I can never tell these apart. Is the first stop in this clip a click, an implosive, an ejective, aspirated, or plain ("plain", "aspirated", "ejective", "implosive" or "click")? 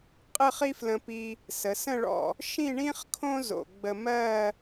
ejective